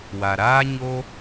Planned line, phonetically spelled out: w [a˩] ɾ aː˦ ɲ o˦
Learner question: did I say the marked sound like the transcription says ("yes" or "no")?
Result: yes